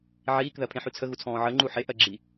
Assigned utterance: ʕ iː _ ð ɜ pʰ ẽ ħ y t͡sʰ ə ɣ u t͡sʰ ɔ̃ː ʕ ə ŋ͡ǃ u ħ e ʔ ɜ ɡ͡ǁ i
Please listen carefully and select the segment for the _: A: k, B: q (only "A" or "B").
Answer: A